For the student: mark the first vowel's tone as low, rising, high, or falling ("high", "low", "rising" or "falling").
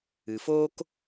low